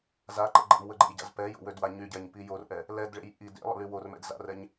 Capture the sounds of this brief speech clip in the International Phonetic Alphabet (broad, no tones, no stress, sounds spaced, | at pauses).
z a ǃ ɛ̰ ɡ͡ǃ ɛ̰ m w ə ɡ͡ǃ ḛ j ɟ a̰ z p ɛ j o̰ w ø d w a ɲ y ɟ ɛ ɲ p i j o r ʔ ɛ | l ɛ d ɭ ḛ j ʔ i d ḛ lˠ ə̰ l y w o r m ɛ̰ d z a̰ r ɛ ɲ